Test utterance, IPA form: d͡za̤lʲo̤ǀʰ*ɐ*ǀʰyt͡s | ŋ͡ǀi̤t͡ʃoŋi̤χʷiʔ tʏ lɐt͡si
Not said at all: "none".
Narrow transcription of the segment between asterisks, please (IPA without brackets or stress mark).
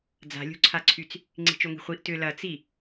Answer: a